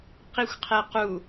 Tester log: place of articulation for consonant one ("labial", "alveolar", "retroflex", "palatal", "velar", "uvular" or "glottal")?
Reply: uvular